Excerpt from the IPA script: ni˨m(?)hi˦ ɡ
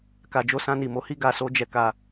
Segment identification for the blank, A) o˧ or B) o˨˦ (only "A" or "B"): B